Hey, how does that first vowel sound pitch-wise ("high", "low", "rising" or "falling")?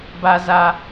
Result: low